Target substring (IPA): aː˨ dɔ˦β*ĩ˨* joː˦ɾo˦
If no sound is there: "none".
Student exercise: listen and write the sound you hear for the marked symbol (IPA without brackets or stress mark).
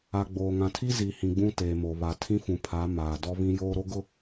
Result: ĩ˦